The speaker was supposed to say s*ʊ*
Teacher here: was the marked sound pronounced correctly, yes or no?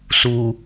no